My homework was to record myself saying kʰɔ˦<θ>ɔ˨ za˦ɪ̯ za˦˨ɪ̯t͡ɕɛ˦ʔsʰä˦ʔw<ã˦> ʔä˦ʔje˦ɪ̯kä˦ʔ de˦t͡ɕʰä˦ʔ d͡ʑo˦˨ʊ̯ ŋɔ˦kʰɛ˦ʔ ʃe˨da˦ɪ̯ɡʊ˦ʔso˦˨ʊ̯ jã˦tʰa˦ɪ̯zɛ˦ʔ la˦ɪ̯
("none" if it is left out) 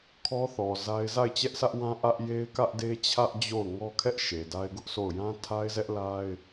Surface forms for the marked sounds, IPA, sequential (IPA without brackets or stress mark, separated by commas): θ, ã˦